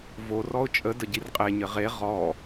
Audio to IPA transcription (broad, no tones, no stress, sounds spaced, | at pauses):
v o r ɔ ʊ̯ t͡ʃʼ ə d ə ɟ i r qʼ e ɲ ɘ ʁ e ʁ ɔ